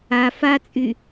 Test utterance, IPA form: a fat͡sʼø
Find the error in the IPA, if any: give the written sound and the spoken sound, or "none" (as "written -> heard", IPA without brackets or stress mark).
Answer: ø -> y